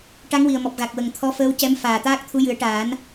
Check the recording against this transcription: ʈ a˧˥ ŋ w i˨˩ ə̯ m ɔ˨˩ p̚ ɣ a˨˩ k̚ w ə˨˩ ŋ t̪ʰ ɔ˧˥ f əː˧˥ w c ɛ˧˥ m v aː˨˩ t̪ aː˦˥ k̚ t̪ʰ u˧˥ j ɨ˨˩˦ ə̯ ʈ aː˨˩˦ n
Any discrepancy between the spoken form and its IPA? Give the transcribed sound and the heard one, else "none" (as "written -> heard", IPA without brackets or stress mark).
v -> f